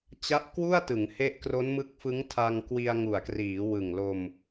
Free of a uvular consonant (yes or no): yes